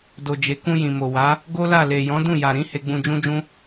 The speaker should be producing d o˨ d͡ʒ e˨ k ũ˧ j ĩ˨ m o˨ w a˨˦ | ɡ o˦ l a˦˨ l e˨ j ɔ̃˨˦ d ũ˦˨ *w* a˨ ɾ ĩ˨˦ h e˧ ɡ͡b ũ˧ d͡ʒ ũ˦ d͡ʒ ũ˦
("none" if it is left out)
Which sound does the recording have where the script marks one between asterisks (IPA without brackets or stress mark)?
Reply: j